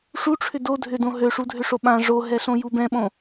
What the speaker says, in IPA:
ʂ u ʈ͡ʂʰ ʏ d o dʱ ʏ d õ ɦ ø ʂ u dʱ ʏ ʂ o ɓ ã ʐ o ɦ ɛ ɬ õ j u b ɛ̃ ɓ õ

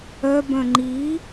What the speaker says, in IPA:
œ b œ̃ ŋ͡ǃ i

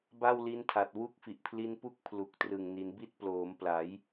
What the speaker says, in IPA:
b a˥˩ w l i˦˥ n tʰ a˨˩ t̚ w u˥˩ k̚ f i˨˩ ʔ pʰ l i˦˥ n p u˥˩ k̚ pʰ l u˨˩ k̚ t r ɯ˨˩ ŋ n i˩˦ n b i˦˥ t̚ p l oː˩˦ m p l a˩˦ j

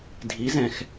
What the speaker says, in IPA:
dʱ i˩˥ z ɛ̃˩ x

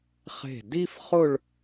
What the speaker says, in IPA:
χ e̤˧˩ d i˥ f χ ʊ˥˧ ɭ

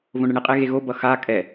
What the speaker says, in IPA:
v õ ɳ ɯ ɳ i qʼ e ɣ e ɣ o b ʌ x a kʼ ɛ

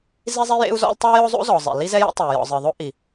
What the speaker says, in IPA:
z i˥ zˤ i˥ j ḛ˥ u̯ z ɔ̰˥ l tˤ o˥ j o˥ zˤ ṵ˥ z ɔ˩ zˤ ḛ˩ l i˥ z ɛ˥ j ɛ̰˥ tˤ ɛ˩ y̯ j ɔ̰˩ zˤ ɨ˩ ðˤ o˥ ʔ i˩

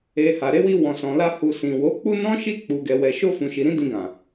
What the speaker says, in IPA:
e˨ h a˨ ɾ e˨˦ w i˧ w ɔ̃˨ s ɔ̃˨ l a˧ h u˨ s ĩ˨ w o˨˦ k͡p u˦ n ɔ̃˦ ʃ i˦˨ k͡p u˨ ɡ ɛ˨ w ɛ˨ ʃ o˧ f ũ˨ ʃ i˨ ɾ ĩ˨˦ d ĩ˧ ɡ ã˨

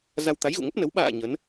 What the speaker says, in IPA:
z a˧ w t̪ a˨˦ j ɣ ṵ˧˨ ŋ ə˦˥ p̚ n ə˨˦ w ɓ a̰ː˧˨ ɲ ə˨˦ n

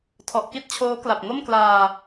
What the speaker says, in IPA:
tʰ ɔ˨˩ ʔ k i˥˩ t̚ t͡ɕʰ oː˦˥ k l a˨˩ p̚ ŋ o˥˩ m k l aː˧

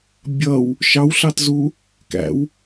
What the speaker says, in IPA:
bʲ ʌ w | ʃ ɑ w ɬ ɑ t z u | k æ̰ w

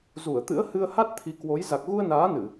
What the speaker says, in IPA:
z u˧˩ ə̯ t̪ ɨ̰˧˥ ə̯ h ɨ˧ ə̯ h a˦˥ t̚ t̪ʰ i˨˦ k w o˨˦ j z a˨˩ k̚ ɣ u˧ ə̯ n aː˨˦ n ɨ˧˩˨

